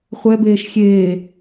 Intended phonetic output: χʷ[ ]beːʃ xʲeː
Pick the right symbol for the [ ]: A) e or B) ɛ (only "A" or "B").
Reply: B